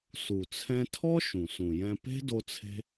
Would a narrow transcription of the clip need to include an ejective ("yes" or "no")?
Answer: no